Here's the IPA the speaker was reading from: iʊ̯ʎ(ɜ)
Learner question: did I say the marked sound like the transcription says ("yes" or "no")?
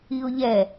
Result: no